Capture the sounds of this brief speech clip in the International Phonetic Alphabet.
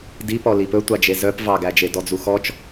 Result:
d i p ɔ l i p ɵ tʷ ɑ d͡ʒ e z œ p v ɑ ɡ æ d͡ʒ e d ɔ d͡z u x ɔ t͡ʃ

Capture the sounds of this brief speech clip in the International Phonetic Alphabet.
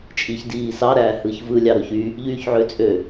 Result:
t͡ʃʼ i ç d iː s ɑ ɾ æː h ɯ ç v ɯ lʲ ɑ ɾ o ç y | ʎ yː ç ʕ ø t͡sʼ ø

